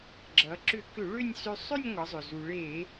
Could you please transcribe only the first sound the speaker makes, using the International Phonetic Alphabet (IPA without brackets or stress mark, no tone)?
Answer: ɡ͡ǁ